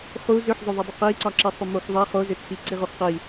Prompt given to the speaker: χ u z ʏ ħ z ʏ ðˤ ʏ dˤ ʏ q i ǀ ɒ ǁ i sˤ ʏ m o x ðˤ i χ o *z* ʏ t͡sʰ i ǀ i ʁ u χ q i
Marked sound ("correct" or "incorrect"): correct